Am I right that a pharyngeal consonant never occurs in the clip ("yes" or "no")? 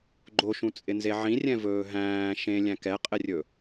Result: no